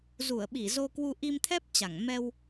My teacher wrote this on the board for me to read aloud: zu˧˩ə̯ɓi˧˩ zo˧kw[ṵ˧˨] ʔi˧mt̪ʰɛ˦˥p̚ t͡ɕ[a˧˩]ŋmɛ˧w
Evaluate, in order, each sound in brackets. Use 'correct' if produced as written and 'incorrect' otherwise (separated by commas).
incorrect, correct